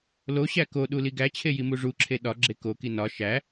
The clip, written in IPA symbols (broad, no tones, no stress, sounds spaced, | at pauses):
l o ɕ æ k o ɗ u l i ɡ æ t͡ɕʰ e j i m u ʐ u ǁʰ e ɗ ɒ ɡ͡ǁ e k o k i n ɒ ʃ æ